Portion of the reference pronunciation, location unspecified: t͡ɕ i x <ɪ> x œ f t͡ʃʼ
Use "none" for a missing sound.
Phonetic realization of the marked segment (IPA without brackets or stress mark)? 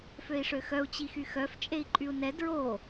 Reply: y